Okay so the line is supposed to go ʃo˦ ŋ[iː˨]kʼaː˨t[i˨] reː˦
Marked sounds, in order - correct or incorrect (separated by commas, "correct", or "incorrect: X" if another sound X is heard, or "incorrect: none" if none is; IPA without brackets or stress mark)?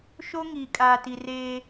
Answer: correct, correct